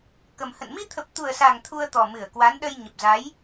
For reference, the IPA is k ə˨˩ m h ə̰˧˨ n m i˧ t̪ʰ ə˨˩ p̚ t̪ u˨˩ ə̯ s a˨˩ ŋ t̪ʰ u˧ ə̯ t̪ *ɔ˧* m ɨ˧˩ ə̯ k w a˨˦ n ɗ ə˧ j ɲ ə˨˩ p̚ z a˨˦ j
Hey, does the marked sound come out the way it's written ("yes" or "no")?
no